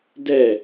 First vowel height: mid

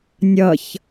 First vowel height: mid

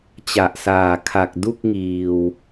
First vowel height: low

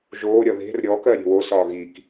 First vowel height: mid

